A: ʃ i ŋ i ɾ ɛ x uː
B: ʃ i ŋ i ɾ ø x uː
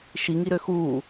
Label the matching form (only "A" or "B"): B